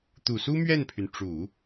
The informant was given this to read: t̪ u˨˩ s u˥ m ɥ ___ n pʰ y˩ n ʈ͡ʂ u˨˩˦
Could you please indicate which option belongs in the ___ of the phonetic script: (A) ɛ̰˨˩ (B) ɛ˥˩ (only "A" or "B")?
B